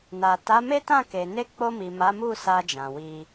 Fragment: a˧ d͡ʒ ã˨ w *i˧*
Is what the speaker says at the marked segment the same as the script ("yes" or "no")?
yes